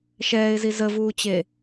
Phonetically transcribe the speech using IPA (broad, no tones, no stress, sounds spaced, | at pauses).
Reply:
ʃ ɛː ɪ̯ z i z ə v uː t͡ɕ e